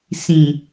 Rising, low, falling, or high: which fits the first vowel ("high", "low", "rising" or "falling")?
low